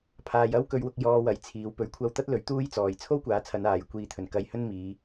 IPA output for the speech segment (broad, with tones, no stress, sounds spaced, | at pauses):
pʰ aː˧ j ɐ˥ w k ɵ˧ ɥ w ʊ˧ k̚ j ɔː˧ w ɐ˨˥ j t͡sʰ iː˨˧ w p ɵ˨˥ ɥ kʷʰ ɐ˧ w t̪ ɐ˥ t̚ l ɵ˨˥ ɥ t̪ uː˥ j t͡s ɔː˨ j t͡sʰ o˥ w kʷ aː˨˥ t͡sʰ ɐ˨˧ n aː˨ j kʷ iː˨ t̪ʰ ɵ˨˩ n k ɐ˧ j h ɵ˥ n m iː˨˧